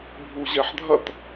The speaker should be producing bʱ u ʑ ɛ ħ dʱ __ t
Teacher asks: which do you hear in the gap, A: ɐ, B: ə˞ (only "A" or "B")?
A